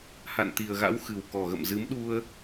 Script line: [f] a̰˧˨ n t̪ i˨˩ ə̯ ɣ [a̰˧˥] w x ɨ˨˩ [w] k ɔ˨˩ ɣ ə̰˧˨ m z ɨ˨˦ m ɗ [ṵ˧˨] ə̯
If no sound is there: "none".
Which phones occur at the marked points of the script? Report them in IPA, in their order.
h, a̰˧˥, w, u˧

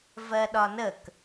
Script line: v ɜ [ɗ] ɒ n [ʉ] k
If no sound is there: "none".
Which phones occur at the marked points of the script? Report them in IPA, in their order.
ɗ, ə

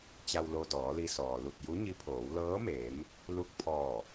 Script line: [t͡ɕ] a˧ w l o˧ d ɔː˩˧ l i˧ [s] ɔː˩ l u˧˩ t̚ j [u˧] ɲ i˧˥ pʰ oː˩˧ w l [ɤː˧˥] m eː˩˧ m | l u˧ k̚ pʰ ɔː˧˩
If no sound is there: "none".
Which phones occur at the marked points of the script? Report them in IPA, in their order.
t͡ɕ, s, u˧˥, ɤː˧˥

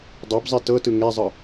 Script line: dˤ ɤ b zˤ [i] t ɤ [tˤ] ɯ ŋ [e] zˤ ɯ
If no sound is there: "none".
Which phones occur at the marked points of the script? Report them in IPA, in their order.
i, t, e

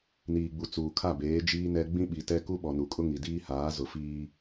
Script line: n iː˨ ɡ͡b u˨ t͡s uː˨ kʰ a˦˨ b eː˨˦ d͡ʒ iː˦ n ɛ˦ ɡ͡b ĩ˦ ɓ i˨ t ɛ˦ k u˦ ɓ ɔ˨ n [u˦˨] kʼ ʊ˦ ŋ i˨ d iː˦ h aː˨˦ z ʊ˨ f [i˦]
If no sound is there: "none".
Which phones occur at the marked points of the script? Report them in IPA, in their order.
u˨, iː˦

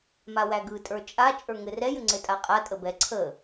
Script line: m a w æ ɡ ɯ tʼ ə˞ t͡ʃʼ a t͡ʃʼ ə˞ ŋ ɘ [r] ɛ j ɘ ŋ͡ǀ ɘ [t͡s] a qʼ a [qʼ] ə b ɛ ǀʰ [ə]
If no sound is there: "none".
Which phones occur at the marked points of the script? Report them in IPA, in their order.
r, tʼ, tʼ, ə

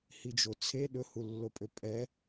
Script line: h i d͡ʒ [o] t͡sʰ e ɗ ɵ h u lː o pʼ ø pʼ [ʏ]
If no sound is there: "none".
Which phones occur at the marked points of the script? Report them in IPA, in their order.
o, ɛ

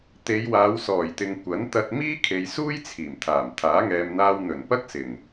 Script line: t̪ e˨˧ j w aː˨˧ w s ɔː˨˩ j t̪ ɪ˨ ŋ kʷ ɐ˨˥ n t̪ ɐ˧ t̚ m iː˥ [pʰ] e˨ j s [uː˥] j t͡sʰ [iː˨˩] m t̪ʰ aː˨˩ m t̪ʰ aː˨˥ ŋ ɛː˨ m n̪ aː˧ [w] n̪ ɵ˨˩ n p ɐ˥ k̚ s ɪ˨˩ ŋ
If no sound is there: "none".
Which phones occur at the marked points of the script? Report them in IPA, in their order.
kʰ, uː˥, iː˨˩, w

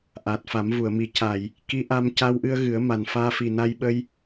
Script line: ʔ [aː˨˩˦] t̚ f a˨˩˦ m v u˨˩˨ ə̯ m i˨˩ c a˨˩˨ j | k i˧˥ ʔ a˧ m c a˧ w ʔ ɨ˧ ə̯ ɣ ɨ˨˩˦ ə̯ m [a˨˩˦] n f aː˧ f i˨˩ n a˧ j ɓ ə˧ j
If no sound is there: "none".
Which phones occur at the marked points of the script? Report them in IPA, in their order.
aː˨˩, a˨˩

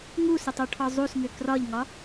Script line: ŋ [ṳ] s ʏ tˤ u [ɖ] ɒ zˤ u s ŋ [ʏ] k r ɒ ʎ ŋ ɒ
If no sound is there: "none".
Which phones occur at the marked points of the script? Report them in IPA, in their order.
u, ʈʰ, ʏ

